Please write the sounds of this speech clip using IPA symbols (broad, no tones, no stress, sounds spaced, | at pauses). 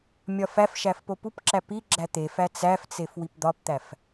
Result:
mʲ ɒ f æ f ʃ æ f p o p u p ǁ æ p i ɡ͡ǁ æ t̪ e f æ t͡s æ f t͡s e f w i p d̪ ɒ p t̪ æ f